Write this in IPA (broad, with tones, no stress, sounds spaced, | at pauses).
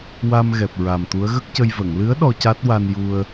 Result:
w a˧ m ɣ ɛ˨˩ p̚ ɹ a˨˩ m t̪ u˧˥ ə̯ ɣ ə˦˥ k̚ c ə˧ j v ə˨˩˨ ŋ l ɨ˧˥ ə̯ ɗ ɔ˧ c a˦˥ t̚ w a˧ n j u˧ ə̯